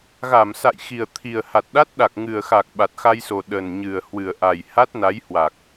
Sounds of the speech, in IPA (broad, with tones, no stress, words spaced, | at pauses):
ɣa˧˩msa̰˧˨jxi˨˩ə̯ t̪ʰi˨˩ə̯ha˨˩t̚ɗa˦˥t̚ɗa˨˩k̚ ŋɨ˨˩ə̯xa˨˩k̚ ɓa˨˩t̚xa˧jso˨˩ ɗə˨˩n ɲɨ˨˩ə̯hwɨ˨˩ə̯ʔa˨˩j ha˦˥t̚na˨˦jhwa˨˩k̚